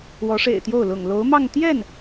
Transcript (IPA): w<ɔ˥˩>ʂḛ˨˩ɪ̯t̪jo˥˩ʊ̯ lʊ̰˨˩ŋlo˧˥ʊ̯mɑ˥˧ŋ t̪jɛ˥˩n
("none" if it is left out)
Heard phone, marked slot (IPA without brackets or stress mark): ɔ˧˥